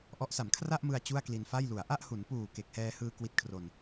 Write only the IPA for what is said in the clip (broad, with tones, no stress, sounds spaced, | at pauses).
ʔ ɔ˦˥ ʔ s a˩˦ m kʰ r a˥˩ ʔ m ɯ˧ a̯ t͡ɕ u˥˩ a̯ k l i˧ n f a˥˩ j l u˩˦ a̯ ʔ a˥˩ ʔ h u˩˦ n p uː˨˩ k e˨˩ k̚ h ɛː˧ h ɯː˧ k w i˦˥ t̚ kʰ r o˧ n